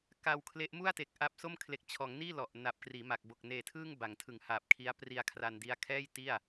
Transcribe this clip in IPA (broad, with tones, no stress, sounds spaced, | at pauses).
k a˧ w kʰ l e˦˥ ʔ m u˥˩ a̯ t e˨˩ k̚ ʔ a˦˥ p̚ s o˥˩ m kʰ l e˨˩ k̚ t͡ɕʰ ɔː˩˦ ŋ n iː˥˩ l ɔ˨˩ ʔ n a˨˩ p̚ k r iː˩˦ m a˨˩ k̚ b o˨˩ k̚ n eː˨˩ tʰ ɯː˥˩ ŋ b a˩˦ ŋ tʰ ɯ˨˩ ŋ h aː˨˩ p̚ kʰ i˦˥ a̯ p r i˧ a̯ kʰ r aː˧ n d i˦˥ a̯ kʰ ɛː˥˩ j t i˥˩ a̯